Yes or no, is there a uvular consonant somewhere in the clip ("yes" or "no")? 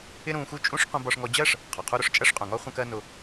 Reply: yes